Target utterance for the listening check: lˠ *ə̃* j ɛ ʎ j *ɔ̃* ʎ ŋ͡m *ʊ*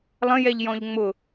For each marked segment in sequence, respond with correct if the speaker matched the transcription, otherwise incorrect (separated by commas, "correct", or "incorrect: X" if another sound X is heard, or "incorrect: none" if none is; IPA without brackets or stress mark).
correct, correct, correct